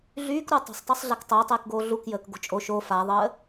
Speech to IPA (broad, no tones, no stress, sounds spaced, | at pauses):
ɮ yː k ɾ u tˤ ə̤ sˤ tˤ œ sˤ ɮ a k tˤ əː tˤ eː k ɡ oː ɮ u k j əː k ɡ o̤ t͡ʃʼ o ʃ o f a ðˤ əː